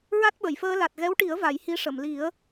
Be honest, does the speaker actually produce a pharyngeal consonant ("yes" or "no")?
no